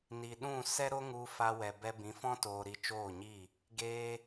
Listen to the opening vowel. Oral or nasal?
oral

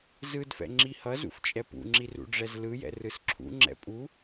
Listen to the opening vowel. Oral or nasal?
oral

